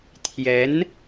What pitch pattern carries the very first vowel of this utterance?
rising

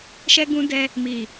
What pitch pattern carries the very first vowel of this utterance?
high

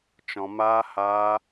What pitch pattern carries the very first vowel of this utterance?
low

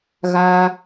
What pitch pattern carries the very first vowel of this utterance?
high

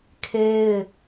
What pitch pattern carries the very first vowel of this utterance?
high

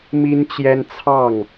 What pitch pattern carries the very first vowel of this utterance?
high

